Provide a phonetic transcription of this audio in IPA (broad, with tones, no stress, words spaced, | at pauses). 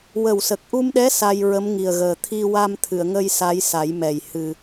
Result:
wə˨˩wsə˨˩k̚ʔu˧mɗɛ˧˥ sa˧j ɹə˧˥mŋi˨˩ə̯ɣəː˨˩ t̪ʰi˧wa˧mt̪ʰɨ˨˩˨ə̯ŋə˧j sa˧˥jsa˨˩˦jmɛ˨˩j hɨ˨˩